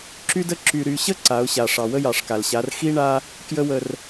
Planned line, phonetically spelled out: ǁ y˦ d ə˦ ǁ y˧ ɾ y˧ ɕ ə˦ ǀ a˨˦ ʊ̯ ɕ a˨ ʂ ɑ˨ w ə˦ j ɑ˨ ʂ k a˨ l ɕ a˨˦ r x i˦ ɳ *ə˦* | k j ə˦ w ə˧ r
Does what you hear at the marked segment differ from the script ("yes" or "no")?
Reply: yes